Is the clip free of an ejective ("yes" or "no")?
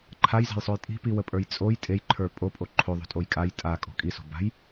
no